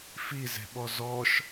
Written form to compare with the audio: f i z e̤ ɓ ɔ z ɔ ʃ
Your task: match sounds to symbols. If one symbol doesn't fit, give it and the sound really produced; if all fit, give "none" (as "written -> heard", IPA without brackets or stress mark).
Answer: none